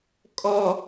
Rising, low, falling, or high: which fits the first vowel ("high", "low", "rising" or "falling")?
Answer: high